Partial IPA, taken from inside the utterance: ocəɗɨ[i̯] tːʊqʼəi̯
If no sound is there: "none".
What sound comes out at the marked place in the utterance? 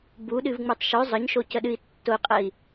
i̯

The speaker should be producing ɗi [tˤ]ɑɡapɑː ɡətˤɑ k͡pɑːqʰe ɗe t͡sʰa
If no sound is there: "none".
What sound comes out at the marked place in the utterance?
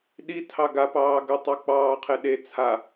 tʰ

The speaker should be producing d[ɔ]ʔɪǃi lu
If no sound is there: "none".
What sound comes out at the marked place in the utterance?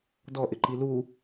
ɔ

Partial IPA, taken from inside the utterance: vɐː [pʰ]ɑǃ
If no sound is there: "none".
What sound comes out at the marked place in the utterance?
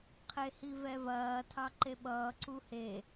tʰ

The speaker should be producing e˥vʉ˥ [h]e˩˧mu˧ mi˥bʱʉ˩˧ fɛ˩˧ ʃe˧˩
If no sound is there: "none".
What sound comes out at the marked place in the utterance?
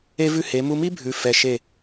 h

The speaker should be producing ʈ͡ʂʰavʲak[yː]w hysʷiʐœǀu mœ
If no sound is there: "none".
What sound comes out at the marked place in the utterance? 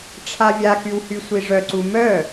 y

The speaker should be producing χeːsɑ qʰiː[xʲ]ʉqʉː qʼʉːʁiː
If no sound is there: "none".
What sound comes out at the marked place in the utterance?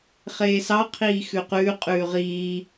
x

